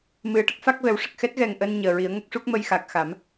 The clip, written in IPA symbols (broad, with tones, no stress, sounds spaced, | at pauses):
m ɨ˨˩˦ ə̯ ʈ ə˦˥ k̚ f a˦˥ k̚ v ɛ˨˩˦ w ʂ ə˨˩ k̚ x ɛ˦˥ t̚ ɣ ɛ˨˩ ŋ ʔ əː˧ n ɲ əː˨˩ ɹ i˨˩˦ ə̯ ŋ ə˦˥ k̚ ʂ u˦˥ k̚ m ə˧ j x a˨˩ k̚ x a˨˩˦ m